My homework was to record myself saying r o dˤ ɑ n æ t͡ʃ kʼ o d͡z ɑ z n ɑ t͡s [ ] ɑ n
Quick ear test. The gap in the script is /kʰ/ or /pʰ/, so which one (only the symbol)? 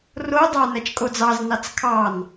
kʰ